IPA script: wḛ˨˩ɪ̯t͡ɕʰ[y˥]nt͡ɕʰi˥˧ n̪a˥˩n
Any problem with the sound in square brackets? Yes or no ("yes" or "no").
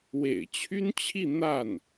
no